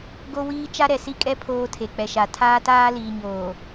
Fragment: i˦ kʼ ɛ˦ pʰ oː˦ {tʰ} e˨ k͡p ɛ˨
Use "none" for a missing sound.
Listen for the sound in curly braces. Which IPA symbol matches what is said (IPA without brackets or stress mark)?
tʰ